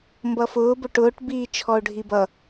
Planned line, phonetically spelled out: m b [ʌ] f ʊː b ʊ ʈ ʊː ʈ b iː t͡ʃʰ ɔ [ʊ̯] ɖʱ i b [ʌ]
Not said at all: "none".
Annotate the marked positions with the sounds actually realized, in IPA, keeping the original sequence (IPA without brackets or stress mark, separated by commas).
ʌ, ʊ̯, ʌ